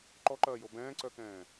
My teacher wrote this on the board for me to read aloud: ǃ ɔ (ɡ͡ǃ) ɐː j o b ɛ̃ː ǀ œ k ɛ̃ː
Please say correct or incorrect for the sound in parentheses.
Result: incorrect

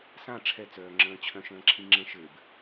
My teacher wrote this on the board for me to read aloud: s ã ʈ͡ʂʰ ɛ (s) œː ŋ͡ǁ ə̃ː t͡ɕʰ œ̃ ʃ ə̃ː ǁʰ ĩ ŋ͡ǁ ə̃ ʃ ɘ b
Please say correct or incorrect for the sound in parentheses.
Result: incorrect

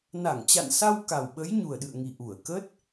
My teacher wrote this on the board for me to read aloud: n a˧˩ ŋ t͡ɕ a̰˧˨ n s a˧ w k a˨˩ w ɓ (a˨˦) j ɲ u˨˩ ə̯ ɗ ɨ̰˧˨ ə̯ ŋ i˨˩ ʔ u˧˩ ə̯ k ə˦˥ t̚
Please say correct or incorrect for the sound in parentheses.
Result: incorrect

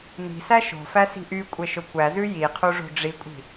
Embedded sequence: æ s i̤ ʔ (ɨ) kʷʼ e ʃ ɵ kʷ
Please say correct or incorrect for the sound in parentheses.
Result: incorrect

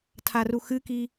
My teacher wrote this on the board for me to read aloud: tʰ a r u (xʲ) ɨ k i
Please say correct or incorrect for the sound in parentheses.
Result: incorrect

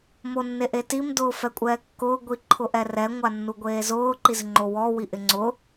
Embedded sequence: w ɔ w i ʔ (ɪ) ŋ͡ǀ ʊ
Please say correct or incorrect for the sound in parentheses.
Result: correct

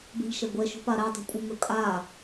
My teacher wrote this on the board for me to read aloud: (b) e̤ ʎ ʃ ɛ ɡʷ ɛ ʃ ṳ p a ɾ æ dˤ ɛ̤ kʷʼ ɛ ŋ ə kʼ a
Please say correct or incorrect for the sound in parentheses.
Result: correct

